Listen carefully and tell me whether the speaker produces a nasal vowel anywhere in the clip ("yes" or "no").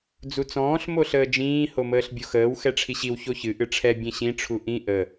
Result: yes